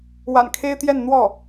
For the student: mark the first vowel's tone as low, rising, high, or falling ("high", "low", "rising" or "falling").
low